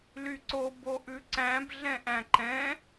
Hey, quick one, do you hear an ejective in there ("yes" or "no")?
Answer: no